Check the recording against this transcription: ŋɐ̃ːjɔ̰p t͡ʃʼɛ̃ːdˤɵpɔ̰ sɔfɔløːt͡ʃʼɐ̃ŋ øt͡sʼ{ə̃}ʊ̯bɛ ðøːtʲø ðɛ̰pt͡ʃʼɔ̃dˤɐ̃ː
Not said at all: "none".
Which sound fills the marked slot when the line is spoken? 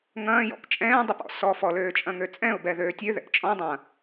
ɛ̃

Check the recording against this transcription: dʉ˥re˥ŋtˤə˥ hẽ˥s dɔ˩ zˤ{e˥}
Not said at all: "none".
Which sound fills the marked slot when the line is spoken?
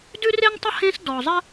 ɘ˥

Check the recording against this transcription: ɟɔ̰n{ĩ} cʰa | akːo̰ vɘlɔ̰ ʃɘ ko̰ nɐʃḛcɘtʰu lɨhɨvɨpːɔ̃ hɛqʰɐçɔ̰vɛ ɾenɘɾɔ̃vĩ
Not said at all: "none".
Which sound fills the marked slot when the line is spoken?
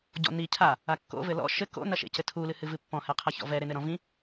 i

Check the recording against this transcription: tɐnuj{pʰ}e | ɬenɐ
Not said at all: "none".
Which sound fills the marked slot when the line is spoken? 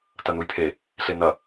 pʰ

